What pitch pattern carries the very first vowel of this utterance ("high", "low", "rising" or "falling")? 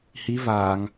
rising